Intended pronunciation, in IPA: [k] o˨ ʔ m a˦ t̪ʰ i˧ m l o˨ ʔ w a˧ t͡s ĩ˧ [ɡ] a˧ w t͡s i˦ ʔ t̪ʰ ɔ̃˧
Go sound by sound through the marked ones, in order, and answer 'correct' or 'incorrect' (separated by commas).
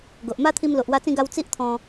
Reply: incorrect, correct